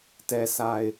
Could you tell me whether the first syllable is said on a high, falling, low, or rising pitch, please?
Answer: low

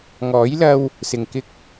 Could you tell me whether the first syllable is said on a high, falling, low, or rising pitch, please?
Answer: rising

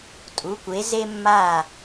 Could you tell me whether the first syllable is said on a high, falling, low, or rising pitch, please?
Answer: rising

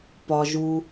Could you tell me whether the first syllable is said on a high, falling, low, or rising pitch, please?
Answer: low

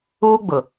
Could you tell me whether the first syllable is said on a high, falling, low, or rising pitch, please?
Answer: high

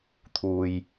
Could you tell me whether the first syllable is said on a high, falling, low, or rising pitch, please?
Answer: low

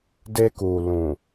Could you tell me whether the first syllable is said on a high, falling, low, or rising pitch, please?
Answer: high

